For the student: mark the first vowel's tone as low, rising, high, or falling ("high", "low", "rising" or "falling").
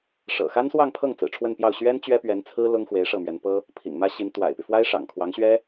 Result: low